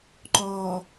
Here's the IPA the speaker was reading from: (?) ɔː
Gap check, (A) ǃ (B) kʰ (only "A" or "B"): A